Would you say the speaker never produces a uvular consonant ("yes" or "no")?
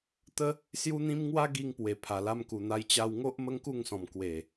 yes